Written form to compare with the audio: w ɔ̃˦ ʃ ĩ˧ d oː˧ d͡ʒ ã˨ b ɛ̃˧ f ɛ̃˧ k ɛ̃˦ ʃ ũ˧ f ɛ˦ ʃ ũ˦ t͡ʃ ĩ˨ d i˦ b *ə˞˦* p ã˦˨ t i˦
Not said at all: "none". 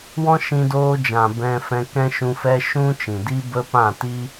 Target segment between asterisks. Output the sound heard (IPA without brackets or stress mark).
ə˦